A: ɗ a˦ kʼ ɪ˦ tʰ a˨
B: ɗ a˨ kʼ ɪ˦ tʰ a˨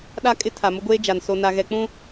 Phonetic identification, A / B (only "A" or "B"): A